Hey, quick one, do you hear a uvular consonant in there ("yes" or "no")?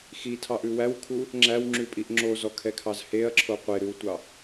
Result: yes